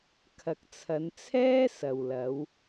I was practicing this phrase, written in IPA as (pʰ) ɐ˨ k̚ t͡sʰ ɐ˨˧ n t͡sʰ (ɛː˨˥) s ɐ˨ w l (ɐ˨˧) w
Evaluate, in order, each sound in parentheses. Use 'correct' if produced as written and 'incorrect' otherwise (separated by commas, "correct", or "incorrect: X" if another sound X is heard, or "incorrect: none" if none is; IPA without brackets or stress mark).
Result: incorrect: kʰ, incorrect: ɛː˥, correct